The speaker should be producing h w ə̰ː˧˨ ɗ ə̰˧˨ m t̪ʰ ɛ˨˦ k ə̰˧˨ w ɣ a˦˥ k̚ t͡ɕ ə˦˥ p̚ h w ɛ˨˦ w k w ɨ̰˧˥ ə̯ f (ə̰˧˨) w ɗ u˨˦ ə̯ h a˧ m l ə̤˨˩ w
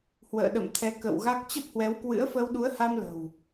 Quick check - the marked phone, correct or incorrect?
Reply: incorrect